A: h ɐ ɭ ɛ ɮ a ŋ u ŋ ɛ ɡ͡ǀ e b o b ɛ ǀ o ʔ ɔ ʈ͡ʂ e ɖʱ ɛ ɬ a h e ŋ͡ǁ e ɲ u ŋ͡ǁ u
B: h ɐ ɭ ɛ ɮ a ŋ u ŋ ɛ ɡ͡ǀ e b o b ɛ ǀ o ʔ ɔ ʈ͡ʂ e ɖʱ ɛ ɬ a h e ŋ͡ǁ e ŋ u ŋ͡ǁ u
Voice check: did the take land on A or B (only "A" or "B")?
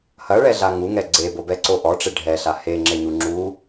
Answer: A